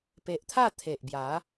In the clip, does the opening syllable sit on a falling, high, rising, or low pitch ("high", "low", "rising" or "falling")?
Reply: low